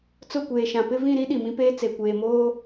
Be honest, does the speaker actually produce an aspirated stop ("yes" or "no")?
no